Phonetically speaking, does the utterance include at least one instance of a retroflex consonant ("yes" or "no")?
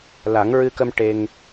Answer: yes